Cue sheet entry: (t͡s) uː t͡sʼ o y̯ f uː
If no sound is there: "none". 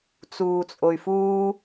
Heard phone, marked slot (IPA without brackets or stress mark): t͡s